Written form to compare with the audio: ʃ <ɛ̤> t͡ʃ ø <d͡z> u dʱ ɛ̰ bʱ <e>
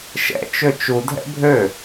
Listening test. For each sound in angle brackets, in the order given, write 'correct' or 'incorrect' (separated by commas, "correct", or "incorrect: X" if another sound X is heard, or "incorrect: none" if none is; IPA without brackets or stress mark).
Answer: incorrect: ɛ̰, incorrect: t͡ʃ, incorrect: ø